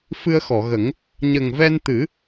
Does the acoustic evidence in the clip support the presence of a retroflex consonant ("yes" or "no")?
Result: no